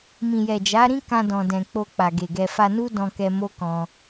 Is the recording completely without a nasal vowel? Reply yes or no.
no